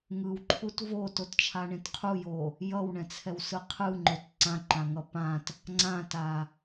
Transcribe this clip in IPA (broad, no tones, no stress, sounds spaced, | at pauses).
ŋ ɯ w ǃʰ u t v o t o t t͡ʃʰ a ɳ ẽ t qʰ u j o | j ʌ w ɳ ɛ̃ t͡sʰ ɛ w s ɯ qʰ ɯ ŋ͡ǃ o t ǀ ã ǃ ã ŋ ʌ p ã t | ŋ͡ǀ ã t a